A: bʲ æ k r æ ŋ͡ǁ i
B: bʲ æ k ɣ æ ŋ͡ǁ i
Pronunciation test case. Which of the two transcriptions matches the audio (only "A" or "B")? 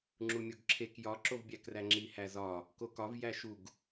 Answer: A